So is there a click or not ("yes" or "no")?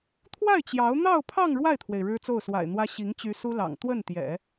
no